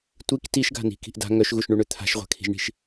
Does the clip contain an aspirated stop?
yes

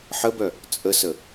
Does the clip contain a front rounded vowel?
yes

